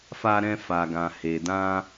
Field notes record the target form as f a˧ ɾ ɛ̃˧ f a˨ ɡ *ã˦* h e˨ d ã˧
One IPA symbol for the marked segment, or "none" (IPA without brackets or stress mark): ã˨